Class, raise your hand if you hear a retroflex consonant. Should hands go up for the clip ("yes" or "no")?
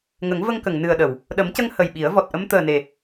no